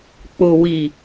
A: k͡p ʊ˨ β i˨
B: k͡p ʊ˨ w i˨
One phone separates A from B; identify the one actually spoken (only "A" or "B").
B